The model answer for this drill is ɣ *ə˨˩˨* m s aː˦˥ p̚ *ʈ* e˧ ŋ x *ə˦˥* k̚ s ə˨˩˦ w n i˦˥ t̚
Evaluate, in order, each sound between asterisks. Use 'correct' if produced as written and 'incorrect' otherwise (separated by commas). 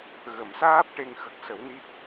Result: correct, correct, incorrect